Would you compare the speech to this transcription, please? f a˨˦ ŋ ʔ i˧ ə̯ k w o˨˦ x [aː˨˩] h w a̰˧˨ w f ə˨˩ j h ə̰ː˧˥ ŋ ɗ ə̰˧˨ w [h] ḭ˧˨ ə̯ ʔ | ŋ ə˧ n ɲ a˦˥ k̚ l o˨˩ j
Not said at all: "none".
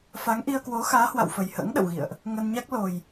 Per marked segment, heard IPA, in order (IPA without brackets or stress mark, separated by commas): aː˨˦, ɣ